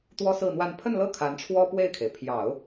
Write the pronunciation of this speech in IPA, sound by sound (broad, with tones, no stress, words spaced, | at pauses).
t̪wɔ˥sɹ̩˥˧n̪wa˥˧n pʰə˥˧nlɤ˥˩ kʰa˧˥nʈ͡ʂʰwɔ˥pwe˥˩ɪ̯kʰe˩ɪ̯ pʰjɑ˨˩˦ʊ̯